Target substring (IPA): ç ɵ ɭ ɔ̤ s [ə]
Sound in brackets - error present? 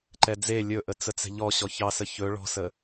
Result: no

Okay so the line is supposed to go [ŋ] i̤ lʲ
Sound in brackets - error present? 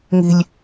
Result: no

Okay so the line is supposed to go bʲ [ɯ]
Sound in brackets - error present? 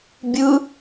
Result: no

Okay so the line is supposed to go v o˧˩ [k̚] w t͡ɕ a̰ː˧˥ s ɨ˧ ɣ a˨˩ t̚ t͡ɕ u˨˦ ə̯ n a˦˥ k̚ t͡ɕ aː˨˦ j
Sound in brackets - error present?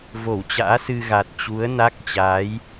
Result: yes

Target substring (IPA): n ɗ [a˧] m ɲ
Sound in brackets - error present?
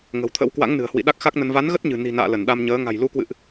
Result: no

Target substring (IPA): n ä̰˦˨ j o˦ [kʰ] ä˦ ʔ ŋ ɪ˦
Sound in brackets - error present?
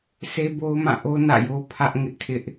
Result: yes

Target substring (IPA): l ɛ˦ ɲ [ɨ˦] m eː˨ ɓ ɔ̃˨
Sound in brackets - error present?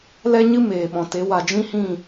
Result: no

